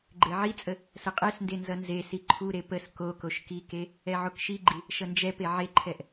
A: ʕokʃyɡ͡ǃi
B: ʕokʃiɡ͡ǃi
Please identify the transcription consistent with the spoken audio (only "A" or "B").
B